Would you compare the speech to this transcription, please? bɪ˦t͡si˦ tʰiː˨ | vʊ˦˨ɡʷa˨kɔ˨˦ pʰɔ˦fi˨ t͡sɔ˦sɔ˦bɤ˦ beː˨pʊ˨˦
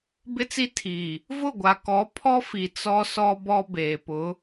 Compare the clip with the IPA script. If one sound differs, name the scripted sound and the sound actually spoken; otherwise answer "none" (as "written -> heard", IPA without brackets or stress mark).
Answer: ɤ˦ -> ɔ˦